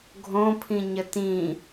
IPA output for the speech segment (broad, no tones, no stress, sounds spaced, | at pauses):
ɡʱ õ pʰ ĩ ɲ ə t ĩ